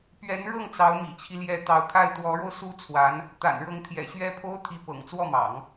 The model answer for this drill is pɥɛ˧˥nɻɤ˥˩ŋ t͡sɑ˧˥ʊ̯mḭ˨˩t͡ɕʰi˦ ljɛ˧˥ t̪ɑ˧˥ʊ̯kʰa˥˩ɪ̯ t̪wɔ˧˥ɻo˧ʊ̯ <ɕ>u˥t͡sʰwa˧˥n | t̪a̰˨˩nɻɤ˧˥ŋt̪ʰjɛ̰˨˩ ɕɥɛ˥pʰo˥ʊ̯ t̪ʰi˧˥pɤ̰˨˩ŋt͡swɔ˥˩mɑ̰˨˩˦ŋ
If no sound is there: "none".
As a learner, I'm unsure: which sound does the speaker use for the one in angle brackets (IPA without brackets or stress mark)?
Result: s